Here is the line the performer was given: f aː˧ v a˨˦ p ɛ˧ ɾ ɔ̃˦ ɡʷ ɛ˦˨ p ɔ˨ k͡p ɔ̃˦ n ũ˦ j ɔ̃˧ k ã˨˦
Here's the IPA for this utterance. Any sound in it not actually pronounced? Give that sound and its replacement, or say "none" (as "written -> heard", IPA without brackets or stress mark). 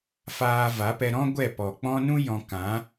none